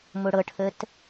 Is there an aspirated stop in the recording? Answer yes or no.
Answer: yes